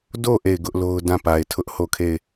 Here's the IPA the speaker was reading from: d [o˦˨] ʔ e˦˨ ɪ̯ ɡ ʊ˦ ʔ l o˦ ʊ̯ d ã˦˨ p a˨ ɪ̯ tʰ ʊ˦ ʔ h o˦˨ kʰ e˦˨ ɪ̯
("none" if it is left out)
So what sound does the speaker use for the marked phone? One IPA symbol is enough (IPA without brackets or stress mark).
o˦˨